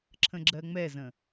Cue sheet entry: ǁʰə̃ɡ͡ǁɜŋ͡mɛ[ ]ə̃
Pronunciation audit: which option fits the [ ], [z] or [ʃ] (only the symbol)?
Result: z